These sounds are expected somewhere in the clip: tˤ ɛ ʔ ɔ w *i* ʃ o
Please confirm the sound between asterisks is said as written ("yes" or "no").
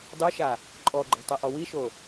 yes